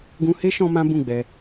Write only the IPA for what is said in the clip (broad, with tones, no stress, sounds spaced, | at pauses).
ɡ ũ˧ h e˦ ʃ ɔ̃˦ m ã˦ b ũ˦˨ ɡ͡b ɛ˧